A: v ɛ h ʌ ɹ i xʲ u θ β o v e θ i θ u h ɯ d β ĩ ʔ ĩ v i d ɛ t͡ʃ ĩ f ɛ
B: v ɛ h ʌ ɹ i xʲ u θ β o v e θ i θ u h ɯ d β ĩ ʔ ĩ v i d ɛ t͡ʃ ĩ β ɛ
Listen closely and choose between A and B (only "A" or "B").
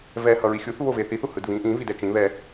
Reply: B